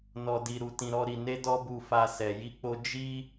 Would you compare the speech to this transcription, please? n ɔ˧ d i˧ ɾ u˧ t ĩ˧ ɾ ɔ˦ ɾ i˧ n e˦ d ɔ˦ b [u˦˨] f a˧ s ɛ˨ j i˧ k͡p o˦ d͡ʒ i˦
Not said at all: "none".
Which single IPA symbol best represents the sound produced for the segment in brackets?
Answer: u˧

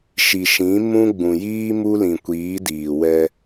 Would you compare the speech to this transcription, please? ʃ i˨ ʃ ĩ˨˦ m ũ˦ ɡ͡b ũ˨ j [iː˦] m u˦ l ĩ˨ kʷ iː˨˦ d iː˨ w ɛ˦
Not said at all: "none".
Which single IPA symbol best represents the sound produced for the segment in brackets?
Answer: iː˦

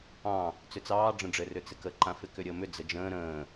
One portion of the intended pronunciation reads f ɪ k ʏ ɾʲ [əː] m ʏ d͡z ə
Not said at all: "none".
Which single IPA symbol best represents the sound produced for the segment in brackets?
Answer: əː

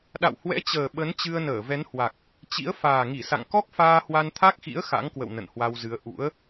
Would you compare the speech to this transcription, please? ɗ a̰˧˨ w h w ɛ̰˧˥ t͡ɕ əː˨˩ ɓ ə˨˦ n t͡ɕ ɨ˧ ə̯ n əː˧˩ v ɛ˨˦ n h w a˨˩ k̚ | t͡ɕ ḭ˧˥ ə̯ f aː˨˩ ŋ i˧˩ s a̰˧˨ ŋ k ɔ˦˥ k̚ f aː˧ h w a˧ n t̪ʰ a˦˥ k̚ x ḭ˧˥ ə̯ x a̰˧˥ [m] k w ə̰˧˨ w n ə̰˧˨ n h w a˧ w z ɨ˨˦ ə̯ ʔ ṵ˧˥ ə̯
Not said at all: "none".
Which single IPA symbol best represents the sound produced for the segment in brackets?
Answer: ŋ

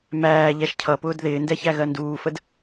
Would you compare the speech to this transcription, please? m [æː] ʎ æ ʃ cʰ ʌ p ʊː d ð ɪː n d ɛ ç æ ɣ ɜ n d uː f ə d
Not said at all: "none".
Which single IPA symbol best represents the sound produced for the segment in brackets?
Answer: æː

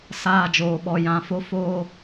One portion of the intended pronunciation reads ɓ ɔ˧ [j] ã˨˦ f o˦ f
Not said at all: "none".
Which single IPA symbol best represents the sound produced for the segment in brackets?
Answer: j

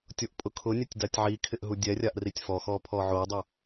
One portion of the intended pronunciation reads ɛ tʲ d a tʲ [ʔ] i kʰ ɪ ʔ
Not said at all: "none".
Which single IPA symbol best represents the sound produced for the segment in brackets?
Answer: ʕ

